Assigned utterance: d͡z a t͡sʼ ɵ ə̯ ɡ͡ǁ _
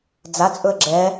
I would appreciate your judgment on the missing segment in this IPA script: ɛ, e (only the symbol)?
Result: ɛ